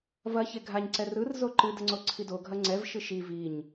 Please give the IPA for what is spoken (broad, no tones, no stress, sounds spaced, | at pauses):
v ɐ ç e ɡʱ a ɲ ǀ ɛ r ɯ r z o ǃ ɨ d ə ŋ͡ǀ o ǀʰ i d o ɡʱ ɐ ŋ͡ǀ ɛ v ʃ ɯ ʃ i v i ɲ